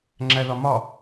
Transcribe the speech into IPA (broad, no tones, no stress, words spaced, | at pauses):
ŋ͡ǁæðɒmɒ